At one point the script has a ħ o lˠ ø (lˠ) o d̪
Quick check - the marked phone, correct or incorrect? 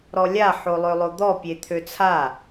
correct